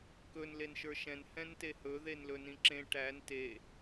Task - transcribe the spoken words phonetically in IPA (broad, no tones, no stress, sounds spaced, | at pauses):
k ɵ n l e n ʃ ə˞ ʃ ɛ̃ n h ɛ̃ n t e h ɵ ð e n l ɵ n ĩ ǁ ẽ ʈ æ n t e